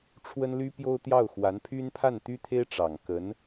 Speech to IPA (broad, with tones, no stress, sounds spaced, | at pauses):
ʈ͡ʂʰ w ə˥ n l y˥ p j o˥ ʊ̯ t̪ j ɑ˥˩ ʊ̯ x w a˧˥ n pʰ y˥ n pʰ a˥˩ n t̪ y˥ t̪ʰ e˥ ɪ̯ ʈ͡ʂ ɑ˨˩ ŋ k ə˧˥ n